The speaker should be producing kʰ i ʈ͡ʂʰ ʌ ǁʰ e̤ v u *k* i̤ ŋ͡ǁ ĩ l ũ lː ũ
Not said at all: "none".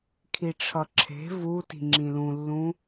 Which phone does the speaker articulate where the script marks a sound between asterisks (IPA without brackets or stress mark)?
t